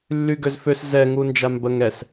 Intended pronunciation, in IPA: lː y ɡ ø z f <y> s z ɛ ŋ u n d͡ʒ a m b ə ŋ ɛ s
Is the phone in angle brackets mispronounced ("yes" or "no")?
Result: yes